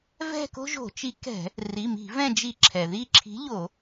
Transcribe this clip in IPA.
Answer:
v ɛ̤˦˨ k o̤˦ ʒ o̤˧˩˧ t͡ʃ i˨˥ k ɛ̤˧˩˧ | r i˩˧˩ m i̤˧˩˧ v ɛ̃˦˨ d͡ʒ i˧˩˧ ǁʰ ɛ˩ ð i˦˨ ǁʰ i̤˨˥ ʎ o˧˩˧

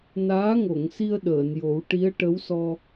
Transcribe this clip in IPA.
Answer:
n aː˧˥ ŋ o˨˩˨ ŋ s i˧ ə̯ ɗ əː˨˩˨ n j o˨˩˦ w ʈ i˧˥ ə̯ ʈ ə˧˥ w s ɔ˧

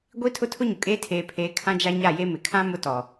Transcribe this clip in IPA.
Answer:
ɡʷ i˦ tʰ ʊ˦ tʰ ʊ˦ ɲ ʊ˨ kʼ eː˦ tʰ eː˨ pʰ eː˨˦ kʰ ã˦ d͡ʒ a˦ ɲ a˦˨ j e˦ m ɪ˨ kʰ ã˦ m ʊ˦ t ɔ˨

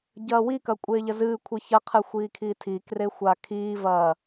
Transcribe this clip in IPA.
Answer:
ɟ ɐː w i k ɐ kʷʼ eː ʎ ɐ z ɨː kʷʰ i ç ɐ qʰ ɨ xʷ iː kʰ i tʰ i k r e xʷ a kʰ iː v ɐː

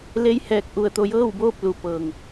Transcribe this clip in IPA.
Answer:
l e˧˥ j h ɛː˧˩ k̚ ʔ u˧˩ ə̯ t̪ o˧ j ɤː˥˨ w b oː˥˨ p̚ l u˩ p ɤː˩ ŋ

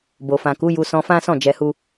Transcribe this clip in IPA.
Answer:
b o˨ f ã˨ k u˨˦ j u˧ s ɔ̃˧ f ã˦ s ɔ̃˦˨ d͡ʒ ɛ˧ h u˦

